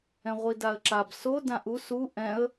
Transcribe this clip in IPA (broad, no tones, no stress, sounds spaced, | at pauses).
ɛ̃ ʁʷ i d a ə̯ ǁ a b s o d ã ʔ u s u ʔ ɛ̃ ə̯